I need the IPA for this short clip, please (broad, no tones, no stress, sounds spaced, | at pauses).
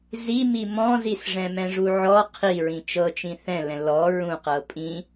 z i m i m ɔ̃ z i s ʐ ɛ̃ m ɛ̃ ʐ u ʕ ɔ qʰ i ɹ ĩ t͡ʃ ɤ t͡ʃ ĩ θ ɛ̃ l ɛ̃ l ɔ ɹ ũ q ɤ pʼ ĩ